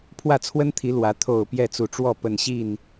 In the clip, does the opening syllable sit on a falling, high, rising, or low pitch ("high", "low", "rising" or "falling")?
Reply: falling